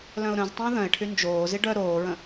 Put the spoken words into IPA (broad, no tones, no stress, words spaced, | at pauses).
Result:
lœ̃ʊ̯ɾœ̃ztˤə̃ː ðœ̃ɪ̯ʈʰy nd͡ʒoːzi ɖœ ɾoːɹə̃